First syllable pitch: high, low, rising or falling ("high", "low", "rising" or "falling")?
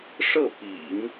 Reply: falling